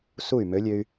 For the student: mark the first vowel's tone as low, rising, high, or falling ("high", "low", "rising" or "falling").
falling